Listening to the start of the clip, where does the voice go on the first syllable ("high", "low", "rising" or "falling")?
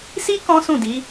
high